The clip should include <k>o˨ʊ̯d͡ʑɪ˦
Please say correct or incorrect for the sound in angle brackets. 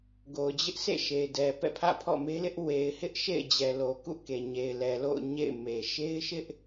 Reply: incorrect